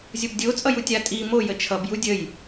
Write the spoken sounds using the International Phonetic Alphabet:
zʲ o b dʲ o t͡sʼ ʌ j u tʲ a tʼ i m o j ə t͡ʃʰ ʌ b j u dʲ ə j

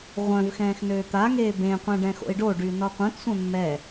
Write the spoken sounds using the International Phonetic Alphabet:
ʁʷ œ̃ v x ɛ̃ː x n øː t̪ a ŋ eː b ẽ qʷ ɛ̃ ɖ ɛ̃ x o̰ i̯ ɖ o ɖ y n ɔ qʷ œ̃ t sʷ ɛ̃ mː ɛ

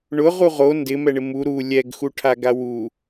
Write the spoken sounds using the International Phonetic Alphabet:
ɳ ʊ ʁ u ʁ o n d ɪ m ɛ ɳ ɪ m u ɾ u lʲ ɛ ɡ x u ʈʰ a ɡ a w u

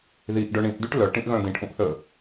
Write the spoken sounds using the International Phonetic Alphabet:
ð i ʔ ɖ œ ɳ ĩ ʔ d y ʈ l œ ʈ ĩ ʔ ɣ œ̃ d̪ ĩ ʈ ʔ ũ ʔ θ ə

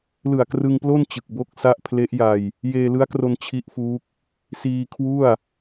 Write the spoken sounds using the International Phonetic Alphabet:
l ɯ˨˩ a̯ k r ɯ˧ ŋ p l o˥˩ n t͡ɕ ɯ˨˩ k̚ b o˥˩ k̚ s a˥˩ ʔ pʰ l e˦˥ ʔ j a˧ j | j eː˧ l ɯ˦˥ a̯ k r o˧ n t͡ɕʰ i˦˥ ʔ f uː˦˥ k̚ | s iː˧ kʰ w u˥˩ a̯

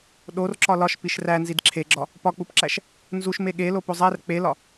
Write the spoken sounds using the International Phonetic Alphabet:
ɗ o r ǁ ɒ l ɒ ʃ p i ʃ r æ n z i d ǁʰ e ɡ͡ǁ ɒ | p ɒ k͡p u p ǁ æ ʃ | n z u ʃ m e ɠ e l o p o zˤ æ r k͡p e l ɒ

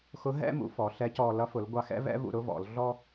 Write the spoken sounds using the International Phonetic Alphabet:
x ʊ˧˥ ɦ ɛ̰˥ m ṵ˩˧ f ɔ˩˧ ɬ ɛ˧˥ c ɔ˧ l ʌ˧˥ f ʊ˩˧ l ɡʷ ɑ˧ x ɛ̰˥ v ɛ̰˥ v ṵ˧ ɾ ʊ˥ v ɔ̰˩˧ l ɮ ɔ˥

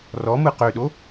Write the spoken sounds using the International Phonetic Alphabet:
r ɔ m ɯ q ø ɗ o

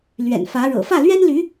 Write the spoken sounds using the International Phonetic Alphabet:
l ɥ ɛ̰˨˩ n f ä˧˥ ɻ ɤ̰˨˩ f ä˥˩ l ɥ ɛ˥ n l y˧˥

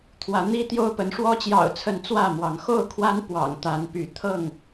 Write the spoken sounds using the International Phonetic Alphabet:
t̪ʰ w ä˨˦ n̪ i˦ t̪ j o˦ ʊ̯ p ə˨˦ n ʂ w ɔ˦ t͡ɕ j ɑ̰˨˩ ʊ̯ t͡sʰ ə˨˦ n t͡s w ä˥˨ m w ɑ˨˦ ŋ x o˥˨ ʊ̯ kʰ w a˦ n p w ɑ̰˨˩ ŋ t̪ a˨˦ n p y˨˦ t̪ʰ ɤ˥˨ ŋ

